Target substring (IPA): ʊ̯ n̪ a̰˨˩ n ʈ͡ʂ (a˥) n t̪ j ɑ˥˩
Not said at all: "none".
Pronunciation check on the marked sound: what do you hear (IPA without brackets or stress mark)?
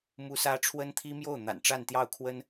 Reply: a˥˧